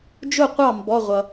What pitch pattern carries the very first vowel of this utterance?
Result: falling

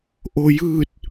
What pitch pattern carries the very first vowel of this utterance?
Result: low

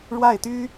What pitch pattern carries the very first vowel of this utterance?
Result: falling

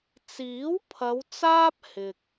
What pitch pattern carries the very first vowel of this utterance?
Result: rising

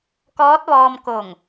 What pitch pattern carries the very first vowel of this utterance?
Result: rising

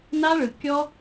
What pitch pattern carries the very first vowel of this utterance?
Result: high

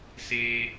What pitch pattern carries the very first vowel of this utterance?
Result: high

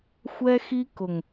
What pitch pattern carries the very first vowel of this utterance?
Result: high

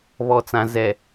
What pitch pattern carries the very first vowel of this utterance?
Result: low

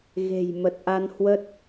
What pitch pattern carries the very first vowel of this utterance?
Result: low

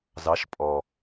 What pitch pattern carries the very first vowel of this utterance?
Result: rising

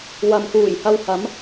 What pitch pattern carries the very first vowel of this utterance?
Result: low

